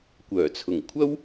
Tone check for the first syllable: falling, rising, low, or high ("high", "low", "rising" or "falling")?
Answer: low